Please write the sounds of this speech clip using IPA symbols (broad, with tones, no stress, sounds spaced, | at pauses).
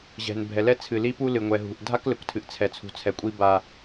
ʑ ɛ̤˨ n bʱ ɛ˨ l ɛ˦ t͡sʰ ɨ˨ l i˦ p u˦ l ɨ˨ ŋʷ ɛ˨ ɦ ṳ˨ ʔ dʱ a˦ k l ɘ˨ kʷ tʰ ɨ˨ ʔ t͡sʰ ɛ˨ t͡sʰ ṳ˨ t͡sʰ ɛ˨ kʷʼ i˦ b a˦